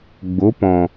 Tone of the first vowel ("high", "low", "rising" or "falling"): rising